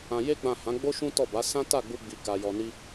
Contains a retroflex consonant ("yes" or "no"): no